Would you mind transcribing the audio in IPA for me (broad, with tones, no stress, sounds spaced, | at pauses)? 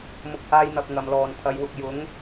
m ʊ˨˥ k̚ h aː˧ j n̪ ɐ˨ p̚ ŋ ɐ˨˩ m l ɔː˨˩ n t̪ʰ ɐ˨˧ j w ʊ˨ k̚ j ʊ˨˥ ŋ